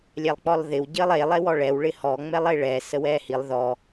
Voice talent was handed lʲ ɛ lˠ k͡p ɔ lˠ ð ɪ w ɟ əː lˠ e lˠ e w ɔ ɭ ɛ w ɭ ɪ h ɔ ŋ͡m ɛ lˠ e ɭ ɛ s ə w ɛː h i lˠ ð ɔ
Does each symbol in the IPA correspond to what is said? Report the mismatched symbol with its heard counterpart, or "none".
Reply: none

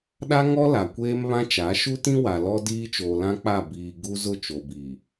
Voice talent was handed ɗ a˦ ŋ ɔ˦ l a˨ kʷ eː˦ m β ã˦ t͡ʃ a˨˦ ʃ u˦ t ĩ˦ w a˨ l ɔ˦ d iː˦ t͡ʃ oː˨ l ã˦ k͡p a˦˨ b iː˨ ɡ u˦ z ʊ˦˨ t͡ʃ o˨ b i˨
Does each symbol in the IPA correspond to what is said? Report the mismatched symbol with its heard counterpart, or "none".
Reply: none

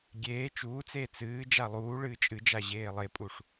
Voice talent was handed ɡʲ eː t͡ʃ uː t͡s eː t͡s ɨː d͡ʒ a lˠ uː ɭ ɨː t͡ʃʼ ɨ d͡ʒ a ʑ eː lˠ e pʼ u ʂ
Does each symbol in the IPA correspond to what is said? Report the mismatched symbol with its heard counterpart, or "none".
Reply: none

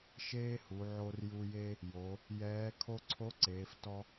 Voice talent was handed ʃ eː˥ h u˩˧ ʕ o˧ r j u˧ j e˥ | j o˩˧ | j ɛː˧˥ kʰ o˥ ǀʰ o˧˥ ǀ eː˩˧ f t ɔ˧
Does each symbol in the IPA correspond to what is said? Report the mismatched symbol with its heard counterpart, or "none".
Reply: none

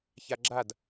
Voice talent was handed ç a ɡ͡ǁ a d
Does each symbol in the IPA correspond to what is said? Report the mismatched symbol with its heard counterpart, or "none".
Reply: none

